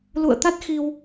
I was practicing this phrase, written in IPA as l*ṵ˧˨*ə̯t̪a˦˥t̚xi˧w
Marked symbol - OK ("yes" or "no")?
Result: yes